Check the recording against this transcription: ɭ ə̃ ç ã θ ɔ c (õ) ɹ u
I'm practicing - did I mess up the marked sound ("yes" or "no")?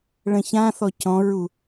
yes